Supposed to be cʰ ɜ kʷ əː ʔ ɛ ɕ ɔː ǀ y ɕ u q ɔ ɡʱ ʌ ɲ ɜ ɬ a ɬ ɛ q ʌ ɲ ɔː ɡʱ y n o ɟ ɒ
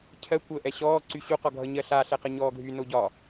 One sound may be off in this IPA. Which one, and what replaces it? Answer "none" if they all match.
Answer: none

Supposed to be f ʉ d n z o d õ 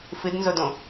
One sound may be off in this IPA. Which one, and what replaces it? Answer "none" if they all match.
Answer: ʉ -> ɨ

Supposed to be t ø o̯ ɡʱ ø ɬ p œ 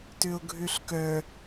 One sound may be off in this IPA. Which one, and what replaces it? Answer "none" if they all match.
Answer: p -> k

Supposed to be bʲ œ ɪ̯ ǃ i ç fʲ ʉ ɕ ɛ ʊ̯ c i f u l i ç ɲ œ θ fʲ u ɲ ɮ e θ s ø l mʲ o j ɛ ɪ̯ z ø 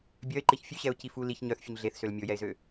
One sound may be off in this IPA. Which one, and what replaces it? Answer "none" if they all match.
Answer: none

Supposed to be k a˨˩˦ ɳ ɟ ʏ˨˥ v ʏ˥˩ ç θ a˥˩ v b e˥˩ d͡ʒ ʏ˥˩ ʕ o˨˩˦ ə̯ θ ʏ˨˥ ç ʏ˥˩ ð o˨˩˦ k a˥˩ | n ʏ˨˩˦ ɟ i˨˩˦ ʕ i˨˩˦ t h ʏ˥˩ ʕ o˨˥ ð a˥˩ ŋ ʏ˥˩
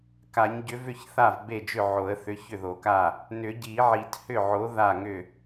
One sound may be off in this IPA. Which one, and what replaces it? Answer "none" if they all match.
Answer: ɳ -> ɲ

